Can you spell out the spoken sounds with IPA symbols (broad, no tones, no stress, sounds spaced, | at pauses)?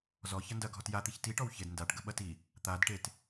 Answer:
z ɔ ç ɐ n d ɐ ɡʱ ɔ t j a t̪ i ç t i ʈ ɔ w ç e d n d a ʈ ɡ ə ɓ ɐ t i | t̪ a d ʈ e t